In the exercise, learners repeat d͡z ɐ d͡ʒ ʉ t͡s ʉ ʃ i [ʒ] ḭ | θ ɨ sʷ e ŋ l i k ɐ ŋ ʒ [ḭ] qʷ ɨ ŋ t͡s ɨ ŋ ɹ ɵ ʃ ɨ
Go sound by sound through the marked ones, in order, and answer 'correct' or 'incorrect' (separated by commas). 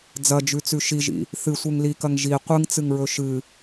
correct, incorrect